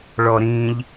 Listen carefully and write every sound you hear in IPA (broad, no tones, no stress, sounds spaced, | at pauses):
ɭ ɔ ɾ ĩ ʎ